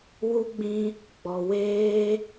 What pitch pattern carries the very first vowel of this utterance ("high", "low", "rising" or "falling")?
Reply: high